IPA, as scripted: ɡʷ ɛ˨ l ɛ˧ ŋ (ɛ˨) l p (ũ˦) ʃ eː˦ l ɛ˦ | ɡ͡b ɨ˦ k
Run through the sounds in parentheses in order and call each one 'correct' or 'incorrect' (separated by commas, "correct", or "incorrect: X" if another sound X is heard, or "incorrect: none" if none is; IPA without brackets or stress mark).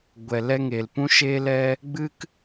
incorrect: e˨, correct